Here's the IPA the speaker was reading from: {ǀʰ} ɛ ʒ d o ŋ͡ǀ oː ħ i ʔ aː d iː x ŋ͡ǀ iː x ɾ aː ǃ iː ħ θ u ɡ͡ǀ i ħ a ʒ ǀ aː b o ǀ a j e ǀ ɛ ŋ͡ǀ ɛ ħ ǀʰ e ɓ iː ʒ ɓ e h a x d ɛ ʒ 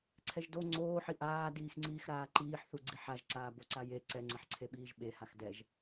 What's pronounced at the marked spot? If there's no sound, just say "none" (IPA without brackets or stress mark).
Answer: ǀʰ